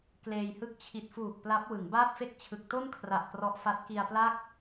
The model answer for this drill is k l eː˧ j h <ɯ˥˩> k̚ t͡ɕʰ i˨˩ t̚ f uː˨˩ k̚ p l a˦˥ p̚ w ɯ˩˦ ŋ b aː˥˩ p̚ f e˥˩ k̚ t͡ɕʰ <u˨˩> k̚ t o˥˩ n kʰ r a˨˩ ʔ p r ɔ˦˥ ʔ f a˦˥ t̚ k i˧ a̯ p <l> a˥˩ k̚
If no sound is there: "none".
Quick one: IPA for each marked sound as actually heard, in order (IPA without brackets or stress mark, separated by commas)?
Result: ɯ˥˩, ɯ˨˩, l